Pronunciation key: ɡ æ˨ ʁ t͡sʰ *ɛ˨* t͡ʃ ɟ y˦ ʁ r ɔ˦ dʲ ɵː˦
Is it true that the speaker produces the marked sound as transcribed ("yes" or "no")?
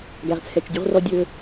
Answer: yes